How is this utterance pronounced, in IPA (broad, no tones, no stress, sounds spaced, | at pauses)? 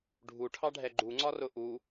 ɖʱ u ʈʰ ɑ ɖʱ ɛ ɡ͡ǃ u ŋ͡ǀ ɒ r ʊ ʔ u